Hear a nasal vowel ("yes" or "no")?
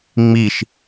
no